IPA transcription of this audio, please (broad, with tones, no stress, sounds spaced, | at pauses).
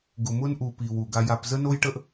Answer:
ɡ ʊ˨ m ʊ˦ n ʔ u˨ p i˨ w u˨ ɡ a˧ j a˧ p z ə˦ n o˦ j ʈ ə˦ ʔ